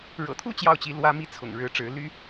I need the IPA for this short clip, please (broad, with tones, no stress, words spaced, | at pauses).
ɻɤ̰˨˩t̪ʰu˥˧ t͡ɕjɑ˥˩ʊ̯t͡ɕi˧˥ lwä˥mi˥˩t͡sʰʊ̰˨˩ŋ ɻɻ̩˧˥ʈ͡ʂɻ̩˧˥ ly˥